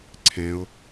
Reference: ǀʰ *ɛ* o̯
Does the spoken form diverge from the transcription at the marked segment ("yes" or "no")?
yes